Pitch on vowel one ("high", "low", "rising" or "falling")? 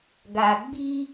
low